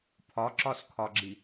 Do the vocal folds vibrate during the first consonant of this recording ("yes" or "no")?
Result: no